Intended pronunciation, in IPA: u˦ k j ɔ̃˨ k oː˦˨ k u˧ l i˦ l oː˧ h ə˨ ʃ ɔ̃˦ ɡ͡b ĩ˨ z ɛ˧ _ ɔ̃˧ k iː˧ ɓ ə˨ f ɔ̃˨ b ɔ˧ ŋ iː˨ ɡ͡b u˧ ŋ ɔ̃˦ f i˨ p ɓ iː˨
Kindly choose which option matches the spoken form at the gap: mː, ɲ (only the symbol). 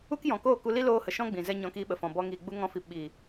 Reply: ɲ